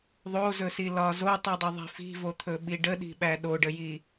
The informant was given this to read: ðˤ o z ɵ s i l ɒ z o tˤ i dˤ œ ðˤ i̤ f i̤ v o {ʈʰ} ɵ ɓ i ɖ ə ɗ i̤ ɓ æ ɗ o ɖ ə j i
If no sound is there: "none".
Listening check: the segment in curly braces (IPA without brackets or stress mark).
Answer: t̪ʰ